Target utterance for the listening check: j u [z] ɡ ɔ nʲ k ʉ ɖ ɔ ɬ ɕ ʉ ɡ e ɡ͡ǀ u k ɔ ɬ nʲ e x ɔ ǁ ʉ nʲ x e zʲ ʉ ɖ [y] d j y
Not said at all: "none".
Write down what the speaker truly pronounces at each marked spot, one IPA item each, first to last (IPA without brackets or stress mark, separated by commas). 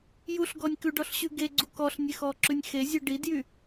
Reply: ɬ, i